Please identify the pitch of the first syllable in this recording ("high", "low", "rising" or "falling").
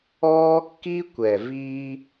high